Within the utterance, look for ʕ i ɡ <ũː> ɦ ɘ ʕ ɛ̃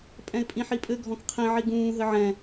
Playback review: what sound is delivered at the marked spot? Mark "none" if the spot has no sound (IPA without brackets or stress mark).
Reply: ũː